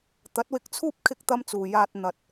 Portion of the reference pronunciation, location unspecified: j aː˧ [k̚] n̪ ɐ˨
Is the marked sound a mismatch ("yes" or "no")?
yes